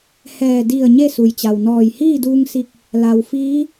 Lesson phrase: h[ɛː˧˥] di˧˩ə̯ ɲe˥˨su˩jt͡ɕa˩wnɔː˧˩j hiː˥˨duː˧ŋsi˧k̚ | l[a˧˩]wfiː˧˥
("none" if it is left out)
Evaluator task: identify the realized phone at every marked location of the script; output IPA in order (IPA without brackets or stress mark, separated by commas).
ɛː˧˩, a˩